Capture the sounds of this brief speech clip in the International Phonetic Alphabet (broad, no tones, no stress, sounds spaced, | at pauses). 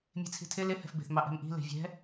mʲ e̤ t͡sʰ i̤ tʰ ɪ l ɪ h ɛ̤ f b e̤ θ m ɑ ʔ ɛ̤ m ʔ i̤ l e̤ vʲ ɛ̤